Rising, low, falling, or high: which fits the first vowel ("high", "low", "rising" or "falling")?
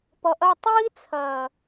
low